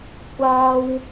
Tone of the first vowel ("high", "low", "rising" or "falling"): high